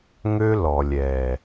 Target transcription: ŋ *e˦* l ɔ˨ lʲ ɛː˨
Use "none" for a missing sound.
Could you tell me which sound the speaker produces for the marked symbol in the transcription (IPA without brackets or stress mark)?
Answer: ø˦